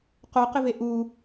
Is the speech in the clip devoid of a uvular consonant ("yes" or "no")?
no